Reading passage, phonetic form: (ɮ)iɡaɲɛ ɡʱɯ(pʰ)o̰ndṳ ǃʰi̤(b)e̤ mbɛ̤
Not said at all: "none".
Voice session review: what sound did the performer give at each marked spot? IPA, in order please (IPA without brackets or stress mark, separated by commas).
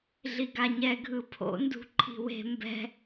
ɮ, pʰ, w